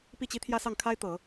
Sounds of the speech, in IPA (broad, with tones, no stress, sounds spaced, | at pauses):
p i˥˩ t͡ɕ i˥ t̪ʰ j ä˥ s ɑ˥˩ ŋ kʰ a˥ ɪ̯ t̪ ɤ˨˩˦